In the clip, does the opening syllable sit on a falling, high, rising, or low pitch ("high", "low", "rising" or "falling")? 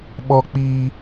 low